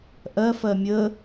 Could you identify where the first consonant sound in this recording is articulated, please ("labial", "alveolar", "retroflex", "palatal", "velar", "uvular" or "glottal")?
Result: glottal